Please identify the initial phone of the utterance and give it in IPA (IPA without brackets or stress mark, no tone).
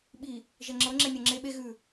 ɓ